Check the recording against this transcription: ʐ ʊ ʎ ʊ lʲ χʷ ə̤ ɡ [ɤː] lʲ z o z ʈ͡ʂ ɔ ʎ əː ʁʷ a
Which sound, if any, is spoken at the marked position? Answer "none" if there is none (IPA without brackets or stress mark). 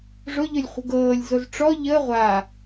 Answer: ɤː